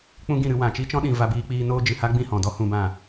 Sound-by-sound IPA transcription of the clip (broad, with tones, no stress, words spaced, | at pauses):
k͡pũ˦ɡĩ˦˨ɾɨ˧ wã˨t͡ʃi˦t͡ʃɔ̃˦ɗĩ˨ va˧biː˧k͡piː˧ noː˦ d͡ʒɨ˨ha˦ ɡ͡bĩ˦˨hɔ̃˨dɔ˦ hũ˧bã˦˨